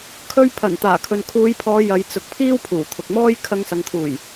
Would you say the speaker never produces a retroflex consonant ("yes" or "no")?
yes